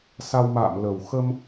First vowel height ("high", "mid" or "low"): low